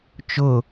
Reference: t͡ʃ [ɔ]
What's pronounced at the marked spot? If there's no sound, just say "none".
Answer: ʊ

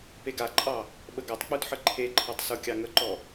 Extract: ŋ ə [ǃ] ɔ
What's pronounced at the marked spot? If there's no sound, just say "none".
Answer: ǃ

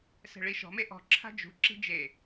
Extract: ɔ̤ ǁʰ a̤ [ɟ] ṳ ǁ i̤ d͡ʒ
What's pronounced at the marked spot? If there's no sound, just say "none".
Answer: d͡ʒ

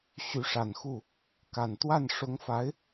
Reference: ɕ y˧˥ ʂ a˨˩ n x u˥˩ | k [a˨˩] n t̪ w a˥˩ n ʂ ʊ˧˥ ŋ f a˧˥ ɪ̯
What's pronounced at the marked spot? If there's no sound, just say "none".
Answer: a˨˩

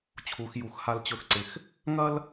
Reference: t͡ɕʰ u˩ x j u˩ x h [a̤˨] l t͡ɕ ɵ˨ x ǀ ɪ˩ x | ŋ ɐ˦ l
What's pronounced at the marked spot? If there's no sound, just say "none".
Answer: a˨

